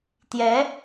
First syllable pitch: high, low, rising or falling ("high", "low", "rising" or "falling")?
rising